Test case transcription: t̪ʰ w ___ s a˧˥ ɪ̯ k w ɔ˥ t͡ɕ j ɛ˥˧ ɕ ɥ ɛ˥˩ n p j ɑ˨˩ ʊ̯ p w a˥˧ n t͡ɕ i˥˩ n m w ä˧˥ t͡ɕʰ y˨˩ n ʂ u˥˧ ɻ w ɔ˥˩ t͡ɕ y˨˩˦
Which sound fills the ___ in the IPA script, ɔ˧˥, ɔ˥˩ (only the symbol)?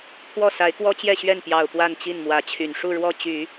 ɔ˥˩